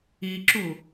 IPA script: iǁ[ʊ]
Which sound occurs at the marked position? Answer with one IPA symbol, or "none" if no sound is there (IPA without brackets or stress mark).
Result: u